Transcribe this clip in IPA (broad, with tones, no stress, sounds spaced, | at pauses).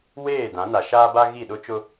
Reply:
w eː˦˨ d ã˨˦ n a˨ ʃ aː˦ b a˦ ɣ i˦˨ ɗ ʊ˦ t͡ʃ ʊ˦